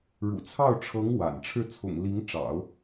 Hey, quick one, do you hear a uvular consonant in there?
no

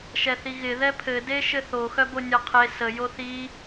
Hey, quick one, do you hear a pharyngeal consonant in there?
no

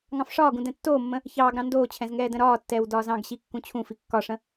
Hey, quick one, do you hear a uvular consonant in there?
no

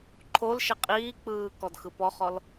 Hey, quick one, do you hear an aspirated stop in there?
yes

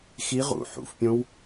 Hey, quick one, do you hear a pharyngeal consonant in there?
yes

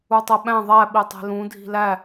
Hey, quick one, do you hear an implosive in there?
yes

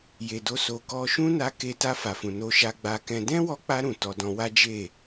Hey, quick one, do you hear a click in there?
no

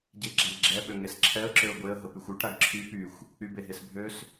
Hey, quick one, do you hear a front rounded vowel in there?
yes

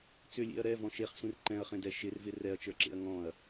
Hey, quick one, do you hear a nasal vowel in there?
yes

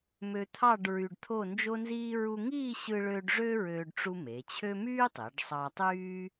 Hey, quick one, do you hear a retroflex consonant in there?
yes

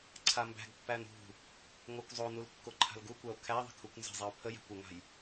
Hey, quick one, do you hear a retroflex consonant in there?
no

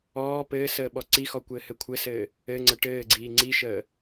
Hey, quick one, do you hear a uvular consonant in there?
no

